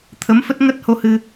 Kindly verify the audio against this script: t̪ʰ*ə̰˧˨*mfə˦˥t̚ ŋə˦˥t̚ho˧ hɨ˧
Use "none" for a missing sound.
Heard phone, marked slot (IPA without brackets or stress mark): ə˨˦